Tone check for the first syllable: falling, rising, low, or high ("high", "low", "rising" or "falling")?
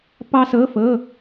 high